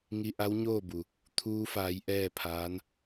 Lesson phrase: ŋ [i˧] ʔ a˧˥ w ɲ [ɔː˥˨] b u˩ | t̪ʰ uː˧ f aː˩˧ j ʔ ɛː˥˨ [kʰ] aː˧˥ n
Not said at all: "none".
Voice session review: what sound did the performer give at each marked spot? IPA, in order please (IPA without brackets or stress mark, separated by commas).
i˧, oː˥˨, pʰ